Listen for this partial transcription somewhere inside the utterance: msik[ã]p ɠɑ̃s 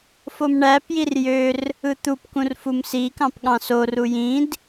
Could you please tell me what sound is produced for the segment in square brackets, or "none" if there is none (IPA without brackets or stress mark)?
ɑ̃